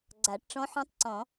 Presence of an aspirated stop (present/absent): absent